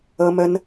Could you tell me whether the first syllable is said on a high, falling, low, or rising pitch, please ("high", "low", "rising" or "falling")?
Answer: high